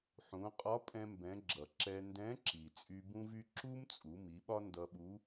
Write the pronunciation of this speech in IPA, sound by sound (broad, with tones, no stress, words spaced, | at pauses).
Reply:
ħũ˩˧ qʼɒ˧˥pʼɛ̃˧mbɛ̃˩˧ɡ͡ǁʌ˩ ǁɛ˧ ndɛ̃˧˥ǁi˩ t͡sʼy˧bũ˥vy˥ ǁu˥mt͡sʼu˩˧ mi˩˧ɓɒ˥ndʌ˧ɓu˧˥